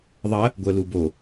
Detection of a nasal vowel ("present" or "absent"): absent